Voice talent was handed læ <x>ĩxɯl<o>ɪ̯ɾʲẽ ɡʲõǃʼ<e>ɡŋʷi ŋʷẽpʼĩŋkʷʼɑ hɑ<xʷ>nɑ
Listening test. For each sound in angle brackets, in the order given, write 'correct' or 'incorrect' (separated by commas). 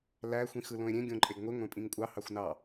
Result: incorrect, incorrect, correct, correct